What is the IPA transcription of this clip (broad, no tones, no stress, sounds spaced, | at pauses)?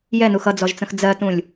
j ɛ n u x ʌ d͡z ɔ ʒ t͡s ə̃ x d͡z ɜ t ũ lʲ